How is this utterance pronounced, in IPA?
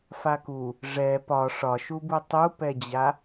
f a k u | ʐ ɛ p ɒ ʂ ɒ ʃ u b u tˤ u p ɛ d͡ʑ a

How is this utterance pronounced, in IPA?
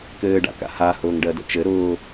k ɘː ɖ a̰ k a̰ h a h ʊː ŋ ɖ ɜ d ə̰ t͡ʃ ɘ ɾ ʊː

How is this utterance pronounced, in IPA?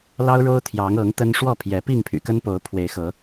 l ɑ˦ ʊ̯ ɻ o˦ ʊ̯ t̪ʰ j ɑ˨˦ ŋ ɤ˨˦ ŋ t̪ ə˦ n ʂ w ɔ˥˨ pʰ j ɛ˨˦ p i˥˨ ŋ pʰ y̰˨˩ k ə˦ n p o˨˦ ʊ̯ pʰ w e˨˦ ɪ̯ x ɤ˨˦

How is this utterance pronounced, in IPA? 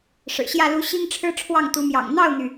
ʂ ɻ̩˨˩ ɕ j ä˥˨ l u˦ ɕ i˦ ŋ ʈ͡ʂʰ ɻ̩˦ ʈ͡ʂʰ w ɑ˥˨ ŋ t̪ u˨˦ m j ɑ̰˨˩ ŋ n̪ ɑ˥˨ ʊ̯ n̪ y˩

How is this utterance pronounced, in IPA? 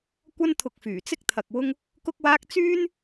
kʷ ɐ˥ n t̪ʰ ʊ˧ k̚ f yː˨˩ t͡s ɪ˥ k̚ t̪ʰ ɐ˧ k̚ w ʊ˥ ŋ | k ʊ˥ k̚ w aː˥ k̚ t͡s yː˥ n

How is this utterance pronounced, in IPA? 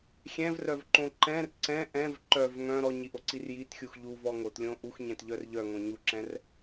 xʲ ɛ̃ v r œ v ǃ õ ǃ ɛ̃ r ǀ ɛ̃ ʔ ɛ̃ v ǃ œ v ŋ œ̃ ɾ ɔ ɲ i ʔ o ǀ i r j i t xʲ u x ʎ u v ɔ ŋ o t lʲ õ ʔ u x ɲ ɛ̃ t ʎ œ r ʎ œ ŋ õ ɲ u ǁ ɛ̃ r

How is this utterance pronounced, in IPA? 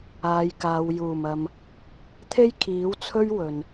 aː˨˧ j k aː˨˧ w j uː˨˩ m ɐ˨ m | t̪ʰ e˥ j kʰ iː˨˥ w t͡sʰ ɵ˥ ɥ w ɵ˨ n

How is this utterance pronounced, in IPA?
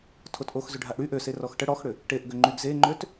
tʰ o t ʔ o x z ʏ ɖʱ a ʔ ɽ y ʔ ø s e r ɔ x ʈ ə ɽ ɔ x ɽ ʏ | ʈ e ʔ ɡ ø ŋ͡ǃ y ɡ z e ŋ͡ǃ ø t

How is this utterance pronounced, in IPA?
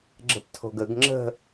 ɡ͡ǁ ə̤ p tʰ o̤ ɡ ə ɡ ŋ͡ǁ ə̤

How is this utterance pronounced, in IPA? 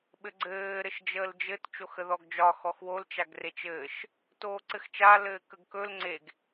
ɓ ɘ ɡ͡ǀ ɘː ɾ ɘ ʃ d͡ʒ əː l d͡ʒ ɘ t t͡ʃ o x ə ð ɔ ɡ d͡ʒ ɒ x ɔ x w o l t͡ʃ a ɡ r e t͡ʃ ɘː ʃ | t oː ǀ ɘ x t͡ʃ a l ɘː k ə ɡ k ɵ l ŋ͡ǀ e ɡ

